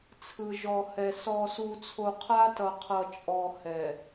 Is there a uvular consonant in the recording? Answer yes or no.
yes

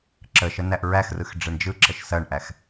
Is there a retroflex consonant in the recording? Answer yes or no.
yes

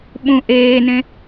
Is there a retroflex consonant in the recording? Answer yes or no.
no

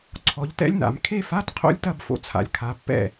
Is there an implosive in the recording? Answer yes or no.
no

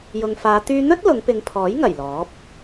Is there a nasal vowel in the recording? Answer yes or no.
no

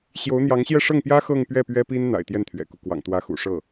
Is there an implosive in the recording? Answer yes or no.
no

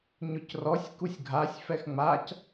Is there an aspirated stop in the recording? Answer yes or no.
no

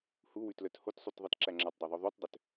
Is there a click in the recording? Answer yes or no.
yes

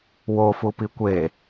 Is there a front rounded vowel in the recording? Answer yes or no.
no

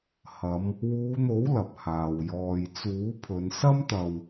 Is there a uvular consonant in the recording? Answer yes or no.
no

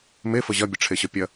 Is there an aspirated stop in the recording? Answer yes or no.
yes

